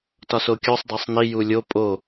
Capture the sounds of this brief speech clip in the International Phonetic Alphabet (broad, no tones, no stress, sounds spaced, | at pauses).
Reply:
t ɒ s o kʲ o sˤ dˤ æ sˤ n i j u lʲ o pʼ o